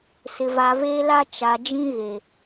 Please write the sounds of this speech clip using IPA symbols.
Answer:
s ɪ˨ v a˨ v e˦ l a˦ t͡ʃ a˨ d͡ʒ ĩ˦ ɣ e˨

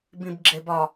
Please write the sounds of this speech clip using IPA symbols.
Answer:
b ĩ b ɡ͡ǁ e b ɒ

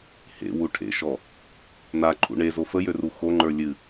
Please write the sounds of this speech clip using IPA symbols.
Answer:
h ḛ w u ʈʰ ḛ ʃ ɔ | n a ǃʰ ṵ ɳ e z o f ə j ø r u x o ŋ͡ǃ ə˞ lʲ ɨ

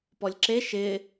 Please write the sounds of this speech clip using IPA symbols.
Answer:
p ɔ lʲ ǁ e ʃ ɪ

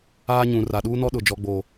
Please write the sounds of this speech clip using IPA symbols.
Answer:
aː˦ ɲ ũ˨ r a˨ ɗ uː˦ n ɔ˦ ɗ ʊ˨ d͡ʒ ɔ˨ ɡ͡b oː˨

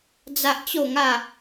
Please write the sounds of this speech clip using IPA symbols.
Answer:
d͡z a˦ ʔ t͡ɕ o˥˧ ŋ a˥˧

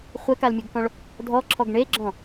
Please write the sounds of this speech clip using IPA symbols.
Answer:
χʷ ɛ k a l mʲ ɯ ɡ k ɔ̃ ɭ | dʱ ɔ ǁʰ ɔ ɡ ɳ e ɡ͡ǁ ɔ̃

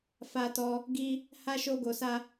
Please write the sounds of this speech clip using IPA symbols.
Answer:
f a˦ t ɔ˦ | ɡ i˦ | h a˦ ʃ o˦ ɡ o˧ s a˦

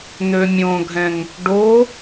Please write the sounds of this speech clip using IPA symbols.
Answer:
n̪ ø mʲ õ ɡʱ ɛ̃ ŋ | ɖ o

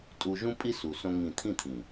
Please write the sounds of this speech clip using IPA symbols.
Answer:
tʼ u˧ ʒ ũ˦ pʼ i˦ s u˧ s õ˦ ŋ ĩ˦˨ t̪ʰ ĩ˦˨ t̪ʰ ĩ˨

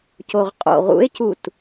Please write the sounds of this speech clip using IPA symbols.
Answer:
c o ʁ qʼ o̰ ʁ ṵ e̯ c u t

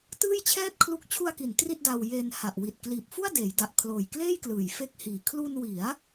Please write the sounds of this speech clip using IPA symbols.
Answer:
t ɯː˥˩ j t͡ɕʰ ɛː˥˩ t̚ kʰ l u˦˥ k̚ t͡ɕʰ u˧ a̯ k i˩˦ n t r i˥˩ t̚ d a˧ w j e˧ n h a˨˩ ʔ w i˨˩ t̚ k l iː˨˩ p̚ f u˥˩ a̯ d eː˩˦ j d a˨˩ ʔ kʰ l oː˨˩ j k l eː˥˩ j k l ɯː˨˩ j f e˦˥ k̚ h iː˨˩ kʰ l u˧ n w i˩˦ a̯

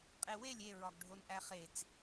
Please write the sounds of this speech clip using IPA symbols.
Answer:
qʼ e w e lʲ e ɹ ɒ ɡ ɖʱ o n ʔ æ χ e t͡s

